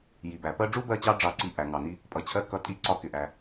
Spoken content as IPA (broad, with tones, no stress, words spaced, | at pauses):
ji˩bæ˩ pɜ˦ɖ͡ʐu˥bɜ˦t͡ɕɑ˦ ɖ͡ʐɑ˥ǀi˦ ʔæ˩ŋɑ˩ni˦ | pʼʌ˨t͡ɕʰɜ˦ kʌ˦ tʼi˥ǀɒ˥kɪ˨ʔæ˨